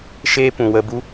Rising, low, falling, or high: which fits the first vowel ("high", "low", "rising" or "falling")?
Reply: high